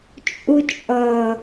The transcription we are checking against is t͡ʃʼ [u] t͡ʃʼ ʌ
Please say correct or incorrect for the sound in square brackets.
correct